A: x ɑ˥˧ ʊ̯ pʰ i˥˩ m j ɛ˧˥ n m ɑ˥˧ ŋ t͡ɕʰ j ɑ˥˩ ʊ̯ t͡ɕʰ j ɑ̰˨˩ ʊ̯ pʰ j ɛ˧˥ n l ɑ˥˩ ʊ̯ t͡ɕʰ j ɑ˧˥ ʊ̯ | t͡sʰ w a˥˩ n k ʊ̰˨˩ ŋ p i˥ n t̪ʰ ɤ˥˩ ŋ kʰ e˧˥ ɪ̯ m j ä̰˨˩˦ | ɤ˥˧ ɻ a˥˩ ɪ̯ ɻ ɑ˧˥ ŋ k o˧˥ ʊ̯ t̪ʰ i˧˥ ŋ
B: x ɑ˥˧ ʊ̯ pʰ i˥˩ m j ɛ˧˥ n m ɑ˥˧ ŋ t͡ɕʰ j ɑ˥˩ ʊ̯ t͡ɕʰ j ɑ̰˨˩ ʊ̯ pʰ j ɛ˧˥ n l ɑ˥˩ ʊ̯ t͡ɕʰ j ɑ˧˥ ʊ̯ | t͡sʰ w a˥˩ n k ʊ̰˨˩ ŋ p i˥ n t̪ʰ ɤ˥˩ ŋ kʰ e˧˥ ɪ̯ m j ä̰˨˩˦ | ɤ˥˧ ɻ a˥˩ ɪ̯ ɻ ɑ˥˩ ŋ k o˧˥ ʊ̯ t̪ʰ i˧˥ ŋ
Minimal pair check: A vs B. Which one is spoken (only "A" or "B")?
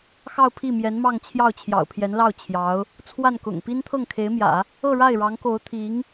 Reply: A